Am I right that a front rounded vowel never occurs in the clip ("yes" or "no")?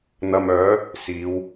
no